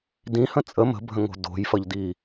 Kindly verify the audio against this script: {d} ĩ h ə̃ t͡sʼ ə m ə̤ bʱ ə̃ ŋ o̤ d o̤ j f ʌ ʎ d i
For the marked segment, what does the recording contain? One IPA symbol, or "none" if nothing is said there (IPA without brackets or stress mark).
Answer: d